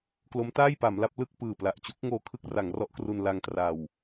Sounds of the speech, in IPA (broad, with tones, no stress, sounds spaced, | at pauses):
k l o˦˥ m t aː˥˩ j p a˩˦ m l a˥˩ p̚ l ɯ˥˩ k̚ p ɯː˨˩ p l a˨˩ ʔ t͡ɕ u˦˥ k̚ ŋ oː˧ kʰ ɯ˥˩ k̚ r a˩˦ ŋ r ɔ˦˥ ʔ k r u˧ n l a˧ ŋ t r a˨˩ w